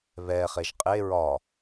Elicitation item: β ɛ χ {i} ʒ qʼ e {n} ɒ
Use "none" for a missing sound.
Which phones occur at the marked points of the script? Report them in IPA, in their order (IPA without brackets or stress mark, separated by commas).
e, ɹ